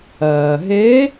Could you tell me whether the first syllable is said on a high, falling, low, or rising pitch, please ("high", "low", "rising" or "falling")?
low